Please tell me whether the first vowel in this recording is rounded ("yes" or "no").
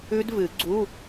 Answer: yes